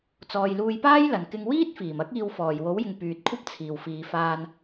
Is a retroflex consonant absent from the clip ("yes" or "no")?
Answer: yes